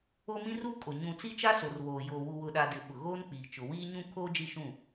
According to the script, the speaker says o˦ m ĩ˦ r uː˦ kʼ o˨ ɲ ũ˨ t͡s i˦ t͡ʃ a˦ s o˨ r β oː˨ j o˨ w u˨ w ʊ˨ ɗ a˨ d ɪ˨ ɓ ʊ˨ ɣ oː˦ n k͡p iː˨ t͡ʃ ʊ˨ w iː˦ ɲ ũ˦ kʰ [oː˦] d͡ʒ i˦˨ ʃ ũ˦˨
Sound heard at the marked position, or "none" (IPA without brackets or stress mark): oː˦